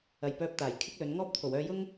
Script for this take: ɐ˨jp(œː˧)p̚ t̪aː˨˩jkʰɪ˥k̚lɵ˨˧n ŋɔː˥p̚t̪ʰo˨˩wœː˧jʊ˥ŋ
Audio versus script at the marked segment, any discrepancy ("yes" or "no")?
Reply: no